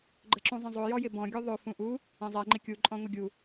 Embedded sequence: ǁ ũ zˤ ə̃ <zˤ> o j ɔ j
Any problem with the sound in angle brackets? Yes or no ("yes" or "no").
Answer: no